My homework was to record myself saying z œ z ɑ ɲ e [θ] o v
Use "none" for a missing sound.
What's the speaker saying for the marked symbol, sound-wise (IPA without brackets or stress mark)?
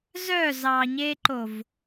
ǃ